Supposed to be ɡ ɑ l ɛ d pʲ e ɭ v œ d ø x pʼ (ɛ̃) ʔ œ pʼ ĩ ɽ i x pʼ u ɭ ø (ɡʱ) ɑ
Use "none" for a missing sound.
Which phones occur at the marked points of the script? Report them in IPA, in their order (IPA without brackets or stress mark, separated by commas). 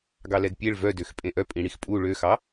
ẽ, x